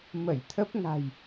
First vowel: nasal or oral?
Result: oral